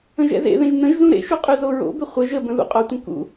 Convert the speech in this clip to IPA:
ə̃ʒɛ̰zḛðẽʒ nə̃ʒzũ ɾḛʃu qʼyzoɹo̰bʏ χʷə ʒəbə̃ ðṵqʼotʷə̃ kṵ

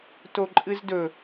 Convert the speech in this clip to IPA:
toǃʼɨzdɵ

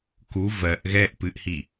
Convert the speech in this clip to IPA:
ku vɜʔ ɣɛʔ pɨʔhi

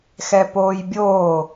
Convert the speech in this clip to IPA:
xɛpoːjbʲoː

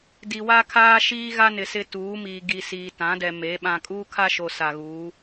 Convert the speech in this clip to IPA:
di˨wa˦ kʰaː˦ ʃiː˦ɣa˦nɪ˨ sɪ˦tuː˨˦miː˨ ɡi˨ siː˨tã˨˦dɛ˨ me˨˦ ɓã˨kʼuː˦kʰa˦ʃo˨ sa˨ɣuː˨˦

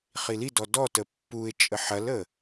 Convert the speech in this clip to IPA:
χilidɔ dɔtə pːuɪ̯t͡ʃʼə ħɐlə

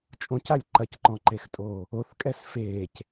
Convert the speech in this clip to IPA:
t͡ʃʼõcalʲ ǃɐcǃɔ̃ǃextʼoː | oθkʼɛs feːc

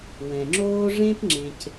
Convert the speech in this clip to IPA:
wɛ̃˨ŋ͡ǁoː˦ ʐẽ˦pŋ͡ǁẽ˨c

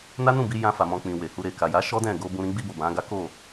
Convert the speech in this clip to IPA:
na˦nũ˦˨bi˧ jã˧fa˨mɔ̃˨ k͡pĩ˨ we˨hu˧ ɾe˨ ka˨ja˨˦ ʃɔ˦dɛ̃˦˨ɡo˧bũ˧ ɾĩ˧ɡ͡bi˧bo˨ bã˨˦ɡa˦ ko˦˨

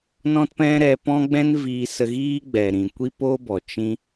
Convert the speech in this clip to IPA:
nɔ̃˦tpɛ̃˦ ɾɛ˧pɔ̃˦ɡ͡bɛ̃˦n viː˧sə˧ɣiː˦ɡ͡bɛ˨ ɾĩ˨ kʷi˦poː˦bɔ˨ t͡ʃĩ˧

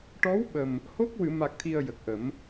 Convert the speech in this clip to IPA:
ʈɔ˧˥wɓə˨˩m | ho˦˥k̚wɨ˨˩˨ma˨˩k̚t̪ʰi˨˩ə̯ jə˨˩k̚ʔə˨˩˦m

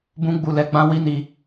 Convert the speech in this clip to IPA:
bũ˦ɡ͡bu˧lɛ˧ɡ͡bã˦ wi˦ni˧

